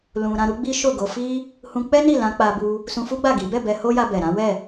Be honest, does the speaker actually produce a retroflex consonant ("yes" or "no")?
no